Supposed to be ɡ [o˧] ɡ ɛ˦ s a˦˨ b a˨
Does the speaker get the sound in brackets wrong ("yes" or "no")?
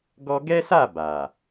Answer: yes